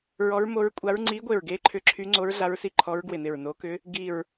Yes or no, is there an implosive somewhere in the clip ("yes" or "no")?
no